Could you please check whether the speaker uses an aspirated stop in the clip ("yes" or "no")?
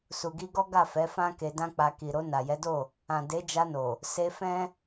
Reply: no